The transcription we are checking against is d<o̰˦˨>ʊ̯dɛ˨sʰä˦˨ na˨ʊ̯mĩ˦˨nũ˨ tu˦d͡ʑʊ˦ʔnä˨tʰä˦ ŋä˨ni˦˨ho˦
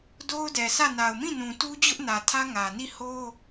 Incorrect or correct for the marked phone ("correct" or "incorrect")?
incorrect